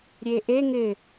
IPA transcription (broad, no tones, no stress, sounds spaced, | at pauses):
ɾʲ e ʔ e ŋ ɪ